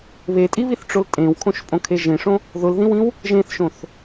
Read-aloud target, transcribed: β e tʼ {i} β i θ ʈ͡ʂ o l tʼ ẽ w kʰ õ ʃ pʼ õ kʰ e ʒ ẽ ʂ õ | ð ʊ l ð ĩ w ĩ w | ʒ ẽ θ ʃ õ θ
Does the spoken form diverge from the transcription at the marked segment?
no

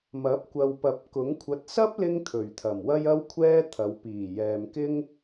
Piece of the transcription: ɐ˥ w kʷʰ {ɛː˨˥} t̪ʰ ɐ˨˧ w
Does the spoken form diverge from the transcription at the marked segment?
yes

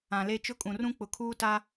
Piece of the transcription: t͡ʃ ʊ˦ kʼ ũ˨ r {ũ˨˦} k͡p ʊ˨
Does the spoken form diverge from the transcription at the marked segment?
yes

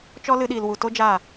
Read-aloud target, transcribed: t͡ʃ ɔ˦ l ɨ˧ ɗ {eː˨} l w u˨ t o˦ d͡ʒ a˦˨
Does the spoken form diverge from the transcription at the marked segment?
yes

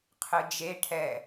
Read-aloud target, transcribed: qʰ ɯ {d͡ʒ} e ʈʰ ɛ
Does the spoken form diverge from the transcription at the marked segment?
no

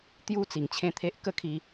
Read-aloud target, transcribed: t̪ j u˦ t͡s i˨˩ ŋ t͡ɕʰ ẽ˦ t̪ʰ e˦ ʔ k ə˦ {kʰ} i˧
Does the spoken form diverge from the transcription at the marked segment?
no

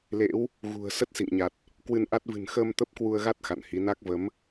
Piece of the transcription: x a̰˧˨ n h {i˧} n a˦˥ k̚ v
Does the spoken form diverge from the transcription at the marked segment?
yes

